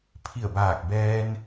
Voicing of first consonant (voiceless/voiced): voiceless